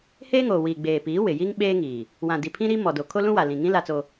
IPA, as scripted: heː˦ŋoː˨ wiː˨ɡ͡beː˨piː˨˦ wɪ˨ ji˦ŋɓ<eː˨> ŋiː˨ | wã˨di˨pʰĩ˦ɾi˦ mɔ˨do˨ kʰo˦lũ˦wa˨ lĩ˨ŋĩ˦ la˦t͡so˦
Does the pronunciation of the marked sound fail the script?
yes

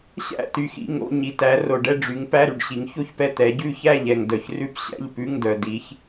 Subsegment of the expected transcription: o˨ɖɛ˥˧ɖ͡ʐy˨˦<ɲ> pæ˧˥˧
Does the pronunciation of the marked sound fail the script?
yes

